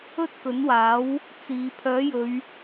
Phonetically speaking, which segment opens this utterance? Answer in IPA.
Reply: ɵ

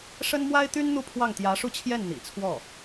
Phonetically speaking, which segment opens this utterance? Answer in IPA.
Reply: ʂ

